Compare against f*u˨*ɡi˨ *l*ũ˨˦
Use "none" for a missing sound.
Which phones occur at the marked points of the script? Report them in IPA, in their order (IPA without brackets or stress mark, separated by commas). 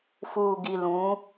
uː˨, l